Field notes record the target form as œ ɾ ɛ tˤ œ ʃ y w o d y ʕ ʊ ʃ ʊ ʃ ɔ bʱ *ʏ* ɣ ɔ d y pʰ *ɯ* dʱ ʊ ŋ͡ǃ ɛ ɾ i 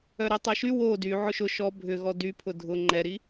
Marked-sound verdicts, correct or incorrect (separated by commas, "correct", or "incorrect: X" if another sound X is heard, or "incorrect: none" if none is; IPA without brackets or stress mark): correct, incorrect: ʊ